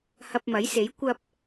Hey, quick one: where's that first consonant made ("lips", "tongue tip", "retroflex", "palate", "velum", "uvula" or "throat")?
throat